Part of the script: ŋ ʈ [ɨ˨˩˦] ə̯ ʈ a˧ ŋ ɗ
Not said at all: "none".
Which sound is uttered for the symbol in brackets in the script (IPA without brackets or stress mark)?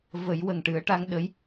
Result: ɨ˨˩˦